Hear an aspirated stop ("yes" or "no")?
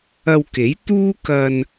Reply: no